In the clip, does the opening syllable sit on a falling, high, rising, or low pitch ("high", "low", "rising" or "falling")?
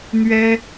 high